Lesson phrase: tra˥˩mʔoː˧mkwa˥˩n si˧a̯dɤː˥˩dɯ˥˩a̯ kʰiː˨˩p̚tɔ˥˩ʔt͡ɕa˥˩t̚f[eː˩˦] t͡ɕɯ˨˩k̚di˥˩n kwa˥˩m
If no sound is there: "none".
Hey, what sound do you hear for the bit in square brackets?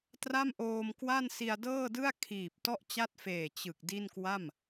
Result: eː˨˩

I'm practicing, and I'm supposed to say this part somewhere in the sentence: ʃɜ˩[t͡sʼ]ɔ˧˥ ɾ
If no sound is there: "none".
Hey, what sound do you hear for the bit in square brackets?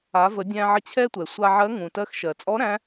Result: t͡sʼ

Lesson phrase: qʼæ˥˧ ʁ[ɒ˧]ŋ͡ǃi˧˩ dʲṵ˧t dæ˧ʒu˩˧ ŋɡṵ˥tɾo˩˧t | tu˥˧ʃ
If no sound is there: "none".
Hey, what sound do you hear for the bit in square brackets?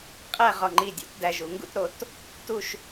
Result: ɒ˧˩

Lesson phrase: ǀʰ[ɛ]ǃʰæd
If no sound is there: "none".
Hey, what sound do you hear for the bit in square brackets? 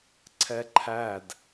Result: ɛ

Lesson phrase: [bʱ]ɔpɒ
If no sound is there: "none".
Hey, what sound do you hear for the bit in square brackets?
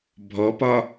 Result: bʱ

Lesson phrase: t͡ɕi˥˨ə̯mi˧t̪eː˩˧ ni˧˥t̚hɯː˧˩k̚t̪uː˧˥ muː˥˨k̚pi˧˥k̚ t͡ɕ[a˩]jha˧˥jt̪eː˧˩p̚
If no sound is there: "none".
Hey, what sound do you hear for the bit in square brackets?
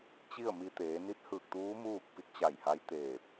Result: a˧˩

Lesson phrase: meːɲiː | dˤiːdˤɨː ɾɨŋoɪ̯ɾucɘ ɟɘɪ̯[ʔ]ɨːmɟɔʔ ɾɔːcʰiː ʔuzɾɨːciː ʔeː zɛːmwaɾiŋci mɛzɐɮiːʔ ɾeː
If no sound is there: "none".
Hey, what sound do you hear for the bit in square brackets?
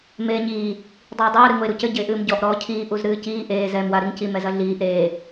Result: ʔ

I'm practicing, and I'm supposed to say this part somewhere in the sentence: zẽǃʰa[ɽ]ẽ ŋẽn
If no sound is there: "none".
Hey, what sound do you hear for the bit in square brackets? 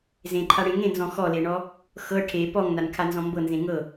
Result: ɽ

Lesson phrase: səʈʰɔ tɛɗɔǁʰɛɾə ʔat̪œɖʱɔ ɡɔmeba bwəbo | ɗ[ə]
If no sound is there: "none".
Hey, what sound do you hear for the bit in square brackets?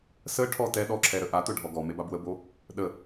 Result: ə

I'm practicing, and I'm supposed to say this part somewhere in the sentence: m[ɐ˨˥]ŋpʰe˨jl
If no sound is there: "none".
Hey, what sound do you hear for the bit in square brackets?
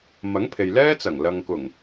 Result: ɐ˨˥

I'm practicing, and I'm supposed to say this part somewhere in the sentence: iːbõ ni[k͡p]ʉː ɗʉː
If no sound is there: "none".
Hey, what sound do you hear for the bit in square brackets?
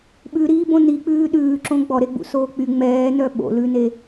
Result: k͡p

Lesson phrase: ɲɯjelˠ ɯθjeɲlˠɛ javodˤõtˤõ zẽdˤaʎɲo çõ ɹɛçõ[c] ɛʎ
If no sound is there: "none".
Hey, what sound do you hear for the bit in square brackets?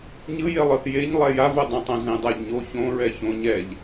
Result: ɲ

